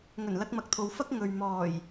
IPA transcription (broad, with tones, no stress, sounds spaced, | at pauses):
ŋ ɵ˨˩ n l ɐ˥ k̚ m ɐ˧ k̚ t̪ʰ o˧ w f ɐ˥ k̚ ŋ ɵ˨ ɥ m ɔː˨˩ j